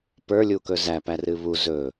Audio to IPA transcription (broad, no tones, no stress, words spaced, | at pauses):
pə˞lʲukɵ zæpærɨ βu zɵ